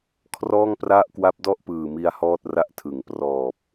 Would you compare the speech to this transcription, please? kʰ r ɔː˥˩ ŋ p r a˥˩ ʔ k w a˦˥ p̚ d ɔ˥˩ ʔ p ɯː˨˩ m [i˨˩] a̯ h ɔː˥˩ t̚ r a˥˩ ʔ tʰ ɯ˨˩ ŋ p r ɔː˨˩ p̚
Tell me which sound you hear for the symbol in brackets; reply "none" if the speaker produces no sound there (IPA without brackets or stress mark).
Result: i˧